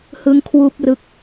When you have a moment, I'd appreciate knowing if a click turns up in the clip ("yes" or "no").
no